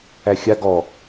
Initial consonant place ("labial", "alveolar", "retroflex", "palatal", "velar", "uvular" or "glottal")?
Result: velar